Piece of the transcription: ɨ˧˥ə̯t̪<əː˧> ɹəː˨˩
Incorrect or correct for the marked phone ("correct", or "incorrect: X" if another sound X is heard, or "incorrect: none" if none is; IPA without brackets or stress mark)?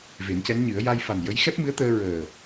correct